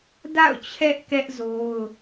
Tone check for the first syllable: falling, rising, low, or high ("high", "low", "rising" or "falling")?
falling